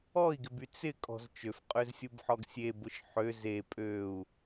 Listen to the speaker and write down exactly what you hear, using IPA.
ɔ i̯ ɡ ɪ b y t͡s ɪ kʼ ɔ̤ z t͡ʃ ø f qʼ ø z sʲ u b ħ ɔ ɡ sʲ e b ʊ ʃ ħ ø z e pʼ ø u̯

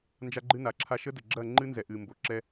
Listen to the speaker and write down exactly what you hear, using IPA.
n d͡ʒ a˦ ɡ͡ǃ ɨ˦ n a˨ ǁʰ a˦ ʃ ə˦ d ə˨ ɡ͡ǁ ɐ˦˨ ŋ͡ǃ ɨ˦ n z ɛ˨ ʔ ɨ˨ m b o˨ ǁ ɛ˦

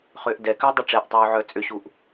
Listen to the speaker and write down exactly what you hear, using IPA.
χ ʏː ʔ d ɛ k ʏː dˤ ɛ ʈ͡ʂ ɛ ʔ tˤ uː ʕ œ t͡sʼ ʏ ɕ u ʔ

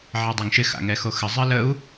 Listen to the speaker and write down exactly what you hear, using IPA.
ʕ ɛ dˤ ɪ ŋ ʃ ɪ x a̰ ŋ ɛ x o x ə zˤ ɨ l ə u̯

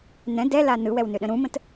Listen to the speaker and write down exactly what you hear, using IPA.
n ɛ̃ d ɛ l a n ɯ w ɛ w n ʏ ɗ ə̃ ɾ ũ m ə̃ t

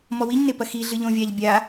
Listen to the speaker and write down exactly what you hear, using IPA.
m ɔ w i ɲ n e p ɐ x i ɮ ɨ ʎ õ vʲ a ʎ bʲ a

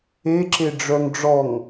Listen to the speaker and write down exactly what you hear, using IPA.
e ǁ e ɖ͡ʐ œ ŋ ɖ͡ʐ ɔ ŋ

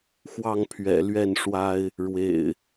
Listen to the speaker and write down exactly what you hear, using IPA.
x w ɑ˥˨ ŋ pʰ ɥ ɛ̰˨˩ l ɥ ɛ˥˨ n ʂ w a˦ ɪ̯ | ɻ w ḛ˨˩ ɪ̯

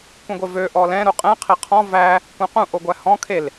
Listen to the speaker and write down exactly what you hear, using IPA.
kʷ ẽ ɡʷ e v ø ʔ ɔ l ɛ̃ ɾ u qʼ ɛ̃ qʰ e qʰ ɔ̃ v æ | kʷ ɛ̃ q ũ ʔ o ɡʷ æ h ɔ̃ kʰ e l

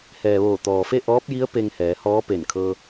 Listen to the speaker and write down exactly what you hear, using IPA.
h ɛː˩ ʋ oː˧˩ t̪ ɔː˩ f e˥˨ ʔ ɔː˧˥ p̚ j i˧˥ ə̯ p e˧ ŋ h ɛː˩˧ h ɔː˧˥ p e˧˩ n kʰ ɤː˧

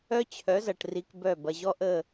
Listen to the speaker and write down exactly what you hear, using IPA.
œ˦ t͡ɕʰ œ˨˦ z ɐ˨ ʈ r i˧ k b œ˦˨ b ɐ˨ ʑ ɔ˦ ʔ ə˦˨

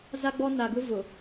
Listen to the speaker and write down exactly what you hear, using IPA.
z a˦ ɡ͡b ɔ˦ n a˨ ɡ ʊ˦ v ʊ˨

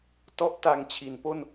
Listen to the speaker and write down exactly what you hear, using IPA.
t ɔ˥˩ ʔ t a˧ ŋ t͡ɕʰ i˩˦ n p o˥˩ n

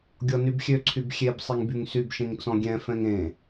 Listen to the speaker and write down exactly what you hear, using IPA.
ɡʲ ɔ n y b xʲ ø ǀʰ y b xʲ e b sˤ i ŋ b y ŋ s y b ʃ ẽ ŋ t͡s ɔ̃ ɡʲ ɛ̃ f ɛ̃ ŋ ẽ

